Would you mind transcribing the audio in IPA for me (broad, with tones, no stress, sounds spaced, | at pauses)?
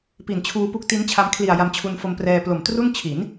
p i˨˩ n t͡ɕʰ uː˧ p u˦˥ k̚ t i˦˥ n t͡ɕʰ a˧ m kʰ l i˨˩ a̯ j a˧ m t͡ɕʰ u˧ n f o˧ m p r ɛː˧ p l o˨˩ m t r u˥˩ n t͡ɕʰ i˩˦ n